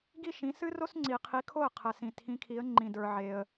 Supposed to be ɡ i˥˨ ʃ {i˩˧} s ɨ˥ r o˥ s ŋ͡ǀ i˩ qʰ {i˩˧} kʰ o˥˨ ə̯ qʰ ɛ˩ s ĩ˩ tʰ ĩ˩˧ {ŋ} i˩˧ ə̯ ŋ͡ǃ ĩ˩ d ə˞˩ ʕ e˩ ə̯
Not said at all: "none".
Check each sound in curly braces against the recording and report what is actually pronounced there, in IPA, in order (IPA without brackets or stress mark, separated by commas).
ĩ˩˧, i˩˧, kʰ